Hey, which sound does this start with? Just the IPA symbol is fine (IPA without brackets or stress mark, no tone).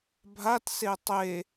bʱ